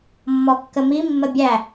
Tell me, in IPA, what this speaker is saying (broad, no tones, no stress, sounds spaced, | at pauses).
mː ɔ kː ə m i mː ə bʲ æ